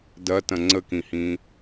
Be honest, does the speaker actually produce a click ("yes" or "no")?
yes